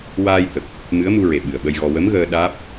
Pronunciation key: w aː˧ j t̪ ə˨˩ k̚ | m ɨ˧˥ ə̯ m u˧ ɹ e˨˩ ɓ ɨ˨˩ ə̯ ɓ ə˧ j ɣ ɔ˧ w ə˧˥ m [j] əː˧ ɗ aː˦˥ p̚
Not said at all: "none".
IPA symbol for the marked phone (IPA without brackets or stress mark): ɣ